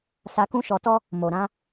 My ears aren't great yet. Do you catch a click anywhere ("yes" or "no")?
no